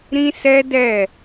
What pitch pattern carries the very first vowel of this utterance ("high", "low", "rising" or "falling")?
high